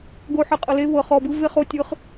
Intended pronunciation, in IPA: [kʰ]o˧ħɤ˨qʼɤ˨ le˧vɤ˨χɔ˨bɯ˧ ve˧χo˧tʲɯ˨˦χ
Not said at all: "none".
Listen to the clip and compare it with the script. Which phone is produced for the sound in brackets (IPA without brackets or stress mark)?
ɡ